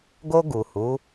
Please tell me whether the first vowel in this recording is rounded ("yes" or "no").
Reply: yes